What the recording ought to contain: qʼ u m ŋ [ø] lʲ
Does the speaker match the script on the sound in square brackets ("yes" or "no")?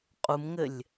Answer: no